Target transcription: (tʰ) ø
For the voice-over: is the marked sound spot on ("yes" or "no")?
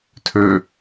yes